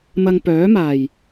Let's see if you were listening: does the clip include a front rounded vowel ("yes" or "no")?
yes